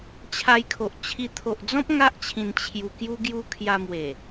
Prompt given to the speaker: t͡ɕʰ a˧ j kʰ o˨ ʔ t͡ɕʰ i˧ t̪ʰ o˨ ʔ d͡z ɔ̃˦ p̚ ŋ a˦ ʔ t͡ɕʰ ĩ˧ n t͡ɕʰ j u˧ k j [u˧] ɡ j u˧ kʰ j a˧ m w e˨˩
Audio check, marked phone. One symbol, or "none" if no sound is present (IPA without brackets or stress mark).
u˧